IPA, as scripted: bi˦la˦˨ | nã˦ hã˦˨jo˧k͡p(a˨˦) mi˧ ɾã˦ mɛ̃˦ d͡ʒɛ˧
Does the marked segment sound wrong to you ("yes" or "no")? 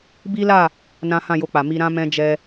yes